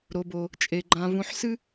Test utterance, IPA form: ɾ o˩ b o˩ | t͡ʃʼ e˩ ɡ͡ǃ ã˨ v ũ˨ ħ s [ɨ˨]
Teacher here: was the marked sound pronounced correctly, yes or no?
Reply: no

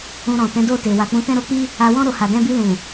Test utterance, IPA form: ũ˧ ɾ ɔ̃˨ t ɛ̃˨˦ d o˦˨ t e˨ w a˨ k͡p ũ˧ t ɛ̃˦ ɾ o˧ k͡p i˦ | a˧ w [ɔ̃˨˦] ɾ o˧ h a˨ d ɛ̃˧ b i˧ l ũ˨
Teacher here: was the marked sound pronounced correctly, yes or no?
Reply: no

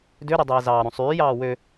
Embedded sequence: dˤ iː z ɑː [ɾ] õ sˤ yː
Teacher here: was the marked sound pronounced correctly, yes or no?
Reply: yes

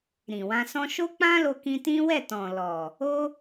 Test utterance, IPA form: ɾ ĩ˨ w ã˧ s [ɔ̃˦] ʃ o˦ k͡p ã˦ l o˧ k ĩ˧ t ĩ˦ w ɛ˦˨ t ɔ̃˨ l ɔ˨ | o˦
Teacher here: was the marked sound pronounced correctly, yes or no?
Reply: yes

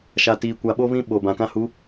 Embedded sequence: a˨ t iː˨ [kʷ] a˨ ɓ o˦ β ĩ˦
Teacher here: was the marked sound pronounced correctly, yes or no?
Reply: yes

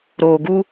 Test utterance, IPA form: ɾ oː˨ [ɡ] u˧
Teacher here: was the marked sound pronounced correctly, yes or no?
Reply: yes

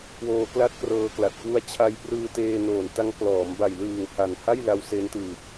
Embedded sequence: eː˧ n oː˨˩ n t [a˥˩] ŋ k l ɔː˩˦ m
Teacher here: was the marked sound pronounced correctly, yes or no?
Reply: no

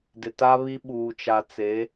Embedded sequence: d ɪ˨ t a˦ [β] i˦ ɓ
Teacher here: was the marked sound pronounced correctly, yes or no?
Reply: yes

